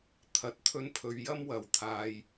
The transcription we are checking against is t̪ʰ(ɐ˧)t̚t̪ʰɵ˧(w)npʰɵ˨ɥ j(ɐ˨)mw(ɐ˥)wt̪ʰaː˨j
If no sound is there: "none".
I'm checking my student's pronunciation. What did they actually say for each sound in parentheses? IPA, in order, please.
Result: ɐ˨˥, none, ɐ˥, ɐ˨˩

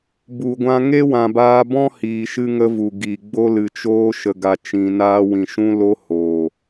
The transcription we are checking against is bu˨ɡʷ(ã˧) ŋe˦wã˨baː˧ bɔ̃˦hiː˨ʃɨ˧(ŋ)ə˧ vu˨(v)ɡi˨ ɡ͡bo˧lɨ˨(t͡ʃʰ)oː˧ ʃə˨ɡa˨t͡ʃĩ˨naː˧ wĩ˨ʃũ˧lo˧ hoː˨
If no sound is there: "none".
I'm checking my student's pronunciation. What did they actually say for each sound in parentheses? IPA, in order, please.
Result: ã˧, ŋ, none, t͡ʃ

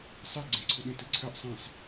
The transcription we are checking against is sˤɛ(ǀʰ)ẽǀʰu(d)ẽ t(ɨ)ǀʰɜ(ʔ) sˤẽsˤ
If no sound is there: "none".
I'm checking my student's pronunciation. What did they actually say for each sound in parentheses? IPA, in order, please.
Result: ɡ͡ǀ, ɗ, ɨ, ʔ

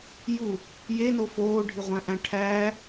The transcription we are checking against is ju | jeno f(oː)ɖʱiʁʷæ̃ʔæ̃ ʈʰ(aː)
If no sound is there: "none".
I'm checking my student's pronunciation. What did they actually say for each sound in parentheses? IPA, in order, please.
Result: oː, æː

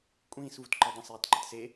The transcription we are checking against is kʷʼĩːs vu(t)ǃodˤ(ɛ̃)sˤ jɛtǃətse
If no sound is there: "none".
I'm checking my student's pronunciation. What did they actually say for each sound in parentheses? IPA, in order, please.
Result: t, ẽ

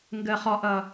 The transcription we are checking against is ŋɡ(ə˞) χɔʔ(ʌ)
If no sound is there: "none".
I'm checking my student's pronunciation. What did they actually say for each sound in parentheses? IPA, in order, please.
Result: ə, ʌ

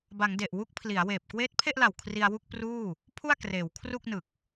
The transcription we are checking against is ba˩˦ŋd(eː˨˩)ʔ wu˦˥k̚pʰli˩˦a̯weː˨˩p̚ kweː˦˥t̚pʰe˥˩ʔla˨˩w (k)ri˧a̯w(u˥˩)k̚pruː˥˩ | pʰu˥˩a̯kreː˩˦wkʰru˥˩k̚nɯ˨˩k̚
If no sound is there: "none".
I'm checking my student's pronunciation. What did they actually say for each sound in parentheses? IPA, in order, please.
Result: e˨˩, kʰ, u˥˩

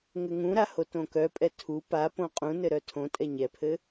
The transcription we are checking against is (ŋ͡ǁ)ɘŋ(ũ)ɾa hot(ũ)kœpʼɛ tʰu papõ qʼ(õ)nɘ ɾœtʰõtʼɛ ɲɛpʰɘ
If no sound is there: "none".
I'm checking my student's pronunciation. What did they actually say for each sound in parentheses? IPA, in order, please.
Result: ŋ, ũ, õ, ũ

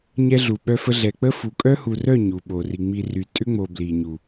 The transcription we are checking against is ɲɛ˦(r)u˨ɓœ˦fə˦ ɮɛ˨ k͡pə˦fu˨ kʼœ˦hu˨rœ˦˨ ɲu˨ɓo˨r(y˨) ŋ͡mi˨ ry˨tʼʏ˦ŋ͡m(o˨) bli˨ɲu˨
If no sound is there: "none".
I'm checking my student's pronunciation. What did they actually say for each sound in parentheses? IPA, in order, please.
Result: ɮ, i˨, o˨

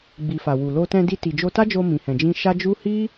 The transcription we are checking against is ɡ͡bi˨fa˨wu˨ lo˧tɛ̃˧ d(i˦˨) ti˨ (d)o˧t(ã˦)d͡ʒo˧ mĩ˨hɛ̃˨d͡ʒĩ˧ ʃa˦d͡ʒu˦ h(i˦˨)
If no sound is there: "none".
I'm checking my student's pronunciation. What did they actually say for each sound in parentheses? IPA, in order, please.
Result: i˧, d͡ʒ, a˦, i˦

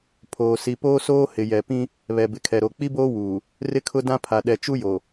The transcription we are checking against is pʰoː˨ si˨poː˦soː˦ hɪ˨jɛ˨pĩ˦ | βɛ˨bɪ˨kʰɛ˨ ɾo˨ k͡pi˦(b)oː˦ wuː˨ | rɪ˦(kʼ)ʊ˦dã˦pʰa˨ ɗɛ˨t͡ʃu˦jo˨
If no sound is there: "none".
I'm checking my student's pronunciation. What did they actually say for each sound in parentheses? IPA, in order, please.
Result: b, kʰ

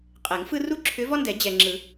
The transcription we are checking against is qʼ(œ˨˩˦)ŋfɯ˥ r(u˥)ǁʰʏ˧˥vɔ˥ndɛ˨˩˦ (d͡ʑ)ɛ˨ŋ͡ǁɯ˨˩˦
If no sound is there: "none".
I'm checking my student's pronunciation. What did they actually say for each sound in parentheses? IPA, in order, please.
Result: ɛ˨˩˦, u˥, d͡ʑ

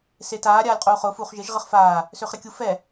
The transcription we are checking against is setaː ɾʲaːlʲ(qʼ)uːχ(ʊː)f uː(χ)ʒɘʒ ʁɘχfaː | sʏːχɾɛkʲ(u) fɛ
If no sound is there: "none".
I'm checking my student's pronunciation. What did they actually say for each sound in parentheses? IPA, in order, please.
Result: qʼ, ʊː, χ, u

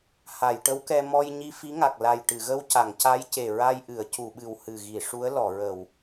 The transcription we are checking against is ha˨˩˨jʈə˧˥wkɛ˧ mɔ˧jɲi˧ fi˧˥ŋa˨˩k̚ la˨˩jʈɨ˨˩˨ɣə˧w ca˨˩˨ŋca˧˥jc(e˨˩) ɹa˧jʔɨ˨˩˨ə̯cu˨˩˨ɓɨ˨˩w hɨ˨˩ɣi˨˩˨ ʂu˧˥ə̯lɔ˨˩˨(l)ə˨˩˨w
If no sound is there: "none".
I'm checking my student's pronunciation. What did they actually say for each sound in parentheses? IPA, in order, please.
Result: e˨˩, ɹ

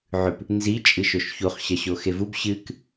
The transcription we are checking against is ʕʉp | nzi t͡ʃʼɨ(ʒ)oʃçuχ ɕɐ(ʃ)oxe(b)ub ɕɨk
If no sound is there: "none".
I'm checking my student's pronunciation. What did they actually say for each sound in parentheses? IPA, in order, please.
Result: ʃ, ɕ, v

